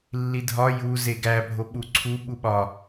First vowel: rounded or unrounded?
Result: unrounded